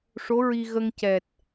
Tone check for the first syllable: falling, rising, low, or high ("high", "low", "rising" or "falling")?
rising